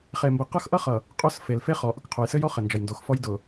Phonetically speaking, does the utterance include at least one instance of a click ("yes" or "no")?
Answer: no